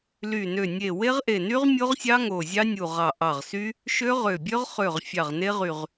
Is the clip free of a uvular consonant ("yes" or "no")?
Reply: no